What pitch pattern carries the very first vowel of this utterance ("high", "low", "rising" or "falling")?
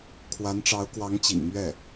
rising